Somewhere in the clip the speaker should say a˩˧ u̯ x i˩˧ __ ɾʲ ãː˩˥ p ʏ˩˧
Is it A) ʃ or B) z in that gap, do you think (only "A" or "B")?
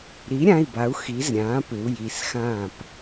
B